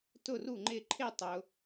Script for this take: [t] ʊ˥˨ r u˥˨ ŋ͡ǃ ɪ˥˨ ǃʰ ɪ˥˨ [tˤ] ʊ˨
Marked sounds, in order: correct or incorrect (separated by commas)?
correct, correct